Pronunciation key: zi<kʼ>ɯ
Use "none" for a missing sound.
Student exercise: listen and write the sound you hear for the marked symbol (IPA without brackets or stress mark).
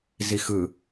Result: x